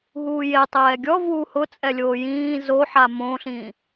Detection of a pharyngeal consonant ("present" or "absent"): present